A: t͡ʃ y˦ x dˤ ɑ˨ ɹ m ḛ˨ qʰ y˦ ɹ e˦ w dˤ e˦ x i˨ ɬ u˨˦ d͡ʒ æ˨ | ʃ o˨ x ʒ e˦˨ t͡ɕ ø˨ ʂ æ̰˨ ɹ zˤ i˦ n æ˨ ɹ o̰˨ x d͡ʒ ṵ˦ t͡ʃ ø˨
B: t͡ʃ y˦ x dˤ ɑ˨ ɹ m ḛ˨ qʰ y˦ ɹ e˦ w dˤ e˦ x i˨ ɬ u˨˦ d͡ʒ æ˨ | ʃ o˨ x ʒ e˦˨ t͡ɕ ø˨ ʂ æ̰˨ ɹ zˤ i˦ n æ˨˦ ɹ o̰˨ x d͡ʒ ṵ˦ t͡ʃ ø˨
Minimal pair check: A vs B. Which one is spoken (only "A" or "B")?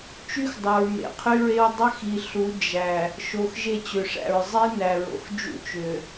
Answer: A